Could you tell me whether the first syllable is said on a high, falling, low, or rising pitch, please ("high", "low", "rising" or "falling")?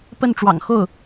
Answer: falling